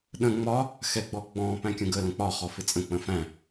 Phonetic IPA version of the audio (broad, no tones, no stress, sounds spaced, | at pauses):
ɗ ə̃ ŋ͡m ɒ | x ɛ ɡ͡b ɔ ɡ͡b ɔ̃ p æ̃ kʲ ə̃ ɡ ə l ə̃ k͡p ɒ χ ɔ f ɪ t͡sʼ ə̃ k͡p ə̃ f æ̃